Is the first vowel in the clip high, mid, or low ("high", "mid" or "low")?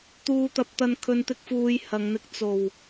high